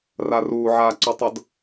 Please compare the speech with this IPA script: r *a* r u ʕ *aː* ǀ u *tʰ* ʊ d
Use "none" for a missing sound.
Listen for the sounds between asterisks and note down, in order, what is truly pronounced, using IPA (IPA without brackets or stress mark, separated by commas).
a, aː, tˤ